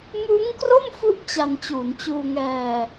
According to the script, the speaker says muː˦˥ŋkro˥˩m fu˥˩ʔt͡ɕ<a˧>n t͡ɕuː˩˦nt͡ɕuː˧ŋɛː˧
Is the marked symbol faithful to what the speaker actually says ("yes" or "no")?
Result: yes